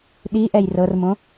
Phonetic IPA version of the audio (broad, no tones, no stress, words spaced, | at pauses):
ɗiʔɛj rɤrmõ